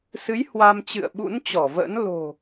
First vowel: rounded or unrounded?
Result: unrounded